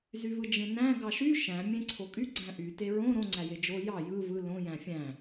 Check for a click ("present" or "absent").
present